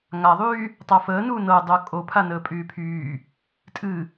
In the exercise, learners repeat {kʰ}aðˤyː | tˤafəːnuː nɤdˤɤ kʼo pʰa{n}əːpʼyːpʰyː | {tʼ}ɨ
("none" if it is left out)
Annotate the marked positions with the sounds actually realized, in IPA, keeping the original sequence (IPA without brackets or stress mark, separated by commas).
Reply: ŋ, n, tʼ